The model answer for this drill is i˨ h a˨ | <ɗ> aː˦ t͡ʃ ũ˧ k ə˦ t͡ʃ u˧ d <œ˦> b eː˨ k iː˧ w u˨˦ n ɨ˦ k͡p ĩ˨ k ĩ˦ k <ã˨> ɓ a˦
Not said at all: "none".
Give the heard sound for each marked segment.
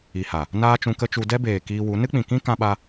n, ɛ˦, ã˦

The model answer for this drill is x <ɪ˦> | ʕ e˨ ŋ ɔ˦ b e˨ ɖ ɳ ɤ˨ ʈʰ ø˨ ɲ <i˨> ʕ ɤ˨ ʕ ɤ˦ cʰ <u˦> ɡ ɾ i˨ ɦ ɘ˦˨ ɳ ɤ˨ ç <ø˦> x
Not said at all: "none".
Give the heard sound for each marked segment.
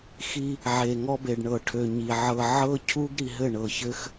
i˦, i˨, u˦, ɘ˦

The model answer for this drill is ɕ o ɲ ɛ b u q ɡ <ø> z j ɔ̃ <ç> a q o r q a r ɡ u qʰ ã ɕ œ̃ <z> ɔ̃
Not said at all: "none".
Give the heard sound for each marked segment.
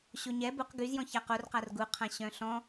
y, ç, ɬ

